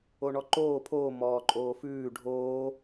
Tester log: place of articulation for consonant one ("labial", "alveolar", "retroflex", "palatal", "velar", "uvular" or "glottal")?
retroflex